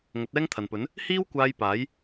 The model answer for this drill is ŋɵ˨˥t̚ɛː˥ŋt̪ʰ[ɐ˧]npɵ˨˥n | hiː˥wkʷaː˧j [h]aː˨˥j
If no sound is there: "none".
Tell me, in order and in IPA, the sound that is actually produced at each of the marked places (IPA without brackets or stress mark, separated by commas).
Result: ɐ˨, p